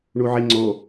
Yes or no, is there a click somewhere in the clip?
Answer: yes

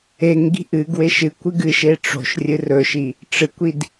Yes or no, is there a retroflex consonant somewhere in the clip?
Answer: yes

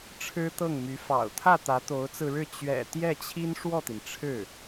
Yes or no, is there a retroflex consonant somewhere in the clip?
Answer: yes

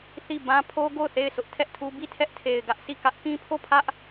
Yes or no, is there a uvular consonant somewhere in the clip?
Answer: no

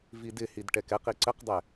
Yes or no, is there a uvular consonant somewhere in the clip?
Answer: yes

